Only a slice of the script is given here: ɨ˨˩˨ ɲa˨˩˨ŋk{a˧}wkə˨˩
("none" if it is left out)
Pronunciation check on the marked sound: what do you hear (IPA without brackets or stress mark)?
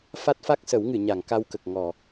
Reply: a˧